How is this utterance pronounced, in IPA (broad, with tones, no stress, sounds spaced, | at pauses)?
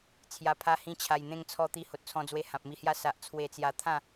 t͡sʰ j a˨˩ pʰ a˧ h ĩ˧ t͡ɕʰ a˨˩ j n̪ ẽ˧ ŋ t͡sʰ ɔ˧ t̪ i˧ h o˨ t̚ t͡sʰ ɔ̃˧ d͡z w e˧ h ã˨ p̚ m i˧ h j a˦ s a˨ ʔ t͡sʰ w e˧ t͡s j a˧ t̪ʰ ã˥˧